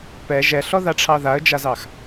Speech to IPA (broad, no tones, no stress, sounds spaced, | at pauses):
p ɛ ʒ ɛ ɬ ɔ ð a ʈ͡ʂʰ ɑ ð a ə̯ d͡ʒ a z ɑ x